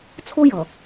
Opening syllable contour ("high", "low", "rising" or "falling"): high